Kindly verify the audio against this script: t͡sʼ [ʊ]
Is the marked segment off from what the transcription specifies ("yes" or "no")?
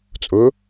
no